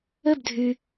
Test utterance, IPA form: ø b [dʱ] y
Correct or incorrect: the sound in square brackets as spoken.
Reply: correct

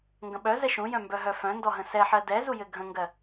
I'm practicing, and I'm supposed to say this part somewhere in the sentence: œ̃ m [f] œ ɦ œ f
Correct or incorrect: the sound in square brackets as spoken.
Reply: incorrect: b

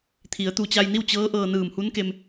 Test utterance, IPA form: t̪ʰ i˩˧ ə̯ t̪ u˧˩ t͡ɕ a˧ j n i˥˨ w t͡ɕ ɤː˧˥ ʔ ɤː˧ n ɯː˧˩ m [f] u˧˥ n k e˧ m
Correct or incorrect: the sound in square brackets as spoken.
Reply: incorrect: h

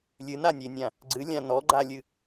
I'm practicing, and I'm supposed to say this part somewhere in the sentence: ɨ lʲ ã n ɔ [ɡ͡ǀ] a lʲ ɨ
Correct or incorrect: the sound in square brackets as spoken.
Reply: incorrect: ɡ͡ǃ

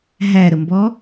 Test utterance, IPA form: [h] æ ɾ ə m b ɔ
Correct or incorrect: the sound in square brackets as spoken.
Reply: incorrect: ɦ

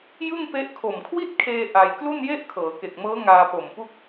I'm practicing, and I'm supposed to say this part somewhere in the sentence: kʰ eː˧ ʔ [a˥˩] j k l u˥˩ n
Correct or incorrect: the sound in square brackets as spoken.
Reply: incorrect: a˧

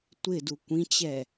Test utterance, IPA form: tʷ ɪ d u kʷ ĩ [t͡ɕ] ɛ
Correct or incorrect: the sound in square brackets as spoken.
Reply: correct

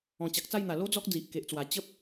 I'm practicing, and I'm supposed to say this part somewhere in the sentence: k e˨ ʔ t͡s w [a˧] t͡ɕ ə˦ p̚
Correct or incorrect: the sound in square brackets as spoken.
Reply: incorrect: a˨˩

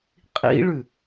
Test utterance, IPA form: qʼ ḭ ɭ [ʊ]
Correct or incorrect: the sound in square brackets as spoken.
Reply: incorrect: ʉ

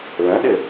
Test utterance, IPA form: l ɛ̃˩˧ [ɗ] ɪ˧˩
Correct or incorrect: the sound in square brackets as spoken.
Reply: correct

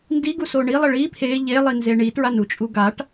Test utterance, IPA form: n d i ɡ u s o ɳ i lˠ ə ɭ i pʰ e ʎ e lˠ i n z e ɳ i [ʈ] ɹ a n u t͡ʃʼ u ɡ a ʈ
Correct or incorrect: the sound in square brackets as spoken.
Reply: incorrect: t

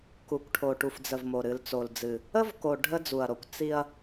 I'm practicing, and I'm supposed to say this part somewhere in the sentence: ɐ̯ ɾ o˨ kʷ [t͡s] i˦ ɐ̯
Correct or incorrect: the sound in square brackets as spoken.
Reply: correct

